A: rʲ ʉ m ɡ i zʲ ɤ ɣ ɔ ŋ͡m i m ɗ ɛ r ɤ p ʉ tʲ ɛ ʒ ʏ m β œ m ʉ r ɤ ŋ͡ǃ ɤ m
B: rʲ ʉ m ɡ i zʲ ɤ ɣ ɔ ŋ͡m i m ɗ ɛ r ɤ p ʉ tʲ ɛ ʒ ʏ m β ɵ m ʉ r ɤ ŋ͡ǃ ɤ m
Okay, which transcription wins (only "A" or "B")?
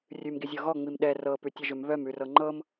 A